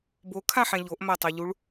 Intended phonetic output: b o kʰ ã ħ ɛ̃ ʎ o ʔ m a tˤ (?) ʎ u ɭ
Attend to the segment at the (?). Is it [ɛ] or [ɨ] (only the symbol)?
ɛ